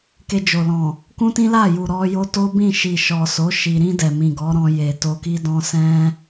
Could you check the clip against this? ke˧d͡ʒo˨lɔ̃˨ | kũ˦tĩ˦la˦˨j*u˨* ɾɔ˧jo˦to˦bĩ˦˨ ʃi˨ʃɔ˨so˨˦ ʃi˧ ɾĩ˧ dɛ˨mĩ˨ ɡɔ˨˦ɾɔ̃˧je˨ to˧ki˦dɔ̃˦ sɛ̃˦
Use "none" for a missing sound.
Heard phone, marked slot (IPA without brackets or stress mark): u˨